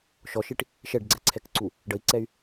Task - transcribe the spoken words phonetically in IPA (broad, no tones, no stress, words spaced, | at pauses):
ʃɔʃiʈ | ʃɛɖɡ͡ǀɛǀʰɛkǀu | ɖəi̯ǀɛy̯